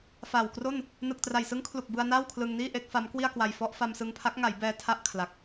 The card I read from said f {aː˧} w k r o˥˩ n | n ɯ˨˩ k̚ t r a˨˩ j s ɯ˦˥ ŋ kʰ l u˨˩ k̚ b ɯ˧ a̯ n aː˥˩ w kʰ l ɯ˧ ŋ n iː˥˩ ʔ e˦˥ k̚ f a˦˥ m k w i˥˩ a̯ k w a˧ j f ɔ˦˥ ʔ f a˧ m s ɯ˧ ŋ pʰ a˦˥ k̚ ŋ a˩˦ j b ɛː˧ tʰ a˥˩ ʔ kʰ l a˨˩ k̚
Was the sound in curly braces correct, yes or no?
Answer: no